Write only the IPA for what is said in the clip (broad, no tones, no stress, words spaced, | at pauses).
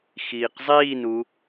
xiːqzˤiːnu